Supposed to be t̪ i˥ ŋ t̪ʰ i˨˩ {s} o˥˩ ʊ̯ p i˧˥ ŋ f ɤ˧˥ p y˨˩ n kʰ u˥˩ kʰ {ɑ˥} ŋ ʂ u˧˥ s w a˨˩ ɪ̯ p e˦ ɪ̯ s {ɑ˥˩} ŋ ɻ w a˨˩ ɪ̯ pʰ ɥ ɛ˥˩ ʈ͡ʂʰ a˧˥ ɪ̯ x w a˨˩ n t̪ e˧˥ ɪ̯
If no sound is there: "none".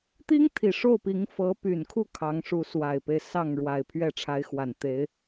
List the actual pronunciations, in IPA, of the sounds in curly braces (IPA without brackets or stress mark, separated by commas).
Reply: ʂ, ɑ˧˥, ɑ˥˩